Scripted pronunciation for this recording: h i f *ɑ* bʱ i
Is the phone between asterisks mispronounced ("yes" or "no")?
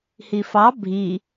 no